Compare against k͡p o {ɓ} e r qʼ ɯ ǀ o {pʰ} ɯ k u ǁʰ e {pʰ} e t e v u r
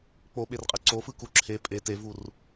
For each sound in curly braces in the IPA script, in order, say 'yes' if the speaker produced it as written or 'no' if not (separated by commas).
yes, no, no